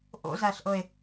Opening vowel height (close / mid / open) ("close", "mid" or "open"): mid